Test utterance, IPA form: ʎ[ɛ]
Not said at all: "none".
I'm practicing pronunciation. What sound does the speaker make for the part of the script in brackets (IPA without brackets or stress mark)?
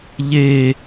e